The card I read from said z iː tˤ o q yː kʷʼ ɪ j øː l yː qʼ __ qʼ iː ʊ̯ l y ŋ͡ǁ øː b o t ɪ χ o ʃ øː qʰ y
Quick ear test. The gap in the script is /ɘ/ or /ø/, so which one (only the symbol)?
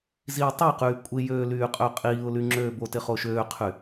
ø